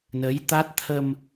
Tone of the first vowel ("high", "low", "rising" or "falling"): rising